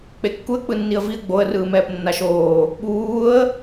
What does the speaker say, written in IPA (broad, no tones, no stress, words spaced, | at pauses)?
k͡pekːuə̯ k͡pɯnːiə̯viə̯ ɡ͡boə̯ rɯːmɛːpnːaʃoː | ɓuːə̯